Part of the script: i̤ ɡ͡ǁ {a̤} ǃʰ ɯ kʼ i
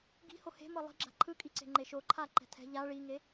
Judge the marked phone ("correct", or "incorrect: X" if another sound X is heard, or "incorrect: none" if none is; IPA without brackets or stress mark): correct